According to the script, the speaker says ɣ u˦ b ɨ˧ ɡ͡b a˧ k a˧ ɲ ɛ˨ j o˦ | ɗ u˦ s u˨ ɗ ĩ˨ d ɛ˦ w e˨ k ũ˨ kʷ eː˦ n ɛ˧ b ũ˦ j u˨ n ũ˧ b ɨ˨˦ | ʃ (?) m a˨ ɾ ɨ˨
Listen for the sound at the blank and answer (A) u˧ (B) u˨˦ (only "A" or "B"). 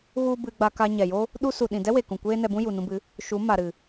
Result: B